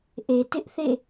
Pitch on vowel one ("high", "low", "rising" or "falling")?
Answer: low